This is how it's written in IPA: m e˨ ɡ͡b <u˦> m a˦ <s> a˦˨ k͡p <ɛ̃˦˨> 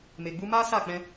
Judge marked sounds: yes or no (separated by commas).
no, yes, no